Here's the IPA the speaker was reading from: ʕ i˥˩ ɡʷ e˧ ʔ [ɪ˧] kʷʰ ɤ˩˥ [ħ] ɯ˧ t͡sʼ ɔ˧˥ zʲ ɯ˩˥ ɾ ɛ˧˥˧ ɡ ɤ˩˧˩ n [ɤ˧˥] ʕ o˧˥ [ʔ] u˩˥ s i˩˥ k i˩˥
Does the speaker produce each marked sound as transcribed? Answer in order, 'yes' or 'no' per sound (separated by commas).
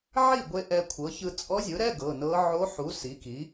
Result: no, no, yes, no